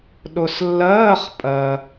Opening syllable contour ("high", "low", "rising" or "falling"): low